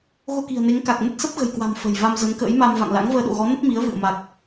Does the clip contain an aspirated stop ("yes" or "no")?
no